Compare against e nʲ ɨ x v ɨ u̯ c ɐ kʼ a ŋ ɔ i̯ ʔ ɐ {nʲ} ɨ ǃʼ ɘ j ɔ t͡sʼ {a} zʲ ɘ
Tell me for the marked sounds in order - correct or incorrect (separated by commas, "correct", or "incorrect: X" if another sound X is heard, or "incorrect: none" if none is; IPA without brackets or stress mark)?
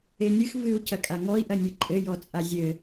correct, correct